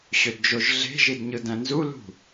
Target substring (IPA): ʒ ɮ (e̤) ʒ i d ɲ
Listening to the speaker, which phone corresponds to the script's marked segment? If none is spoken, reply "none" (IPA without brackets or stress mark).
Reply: e̤